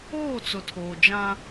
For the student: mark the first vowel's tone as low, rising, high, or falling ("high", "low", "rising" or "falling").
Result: falling